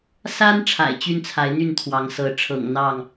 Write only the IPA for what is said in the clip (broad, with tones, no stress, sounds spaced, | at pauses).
s a˦ n ʈ͡ʂʰ a̰˨˩ ɪ̯ t͡ɕ y˦ n t͡sʰ a˨˦ ɪ̯ n̪ y˥˨ n t̪ʰ w ɑ˨˦ ŋ s ɤ˨˦ ʈ͡ʂʰ ɤ̰˨˩ ŋ n̪ ɑ˥˨ ŋ